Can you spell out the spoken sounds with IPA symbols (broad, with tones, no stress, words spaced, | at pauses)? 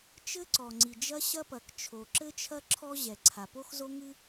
t͡ʃɘ˥ǀɔ˩ŋ͡ǀi˩ d͡ʒɐ˥ɕɐ˥pɐ˩kt͡ʃʰo˩ ǁɘ˥t͡ʃʰɐ˥ ǁʰɔ˥ ʑɛ˩ǀʰa˩ po˥xzo˥ŋɨ˥